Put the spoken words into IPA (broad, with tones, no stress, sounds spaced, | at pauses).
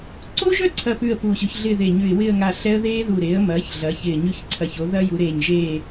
ǀ o˦˥ ʒ œ˥˨ ǀʰ ɐ˥˨ p ʉ˥˨ ə̯ p u˧˩ ɕ ʉ˩˥ ç ɮ ɪː˥˨ ð e˧˩ ɲ ʉ˧˩ ɪ̯ w ɪː˥˨ ə̯ ŋ a˧˩ ɬ ɛ˦˥ ə̯ ð eː˦˥ ð u˧˩ ɾ eː˩˥ ə̯ m ɐː˩˥ ç ɮ ɐː˩˥ ç ɪː˧˩ ɲ ʉ˥˨ ç ǀʰ ɐ˧˩ ç o˩˥ ð ɐ˦˥ j u˩˥ ɾ eː˧˩ ɲ ʒ eː˥˨